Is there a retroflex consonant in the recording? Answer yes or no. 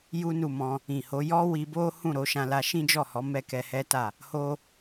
no